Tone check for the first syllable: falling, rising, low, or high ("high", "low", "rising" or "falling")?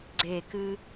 falling